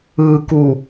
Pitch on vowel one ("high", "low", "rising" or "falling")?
low